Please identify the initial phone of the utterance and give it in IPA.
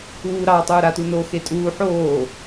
uː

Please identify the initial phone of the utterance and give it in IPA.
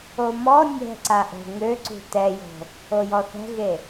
o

